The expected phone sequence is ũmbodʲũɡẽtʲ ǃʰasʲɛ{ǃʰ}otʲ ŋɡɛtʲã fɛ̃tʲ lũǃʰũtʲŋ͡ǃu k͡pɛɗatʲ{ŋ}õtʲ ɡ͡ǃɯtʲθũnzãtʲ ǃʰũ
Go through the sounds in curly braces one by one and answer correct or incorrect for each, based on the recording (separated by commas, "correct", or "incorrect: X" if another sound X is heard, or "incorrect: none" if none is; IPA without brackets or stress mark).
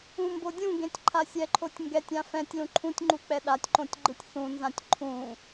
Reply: correct, incorrect: ǃ